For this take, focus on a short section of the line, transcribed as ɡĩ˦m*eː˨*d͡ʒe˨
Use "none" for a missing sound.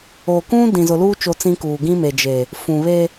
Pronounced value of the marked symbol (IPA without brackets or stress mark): e˨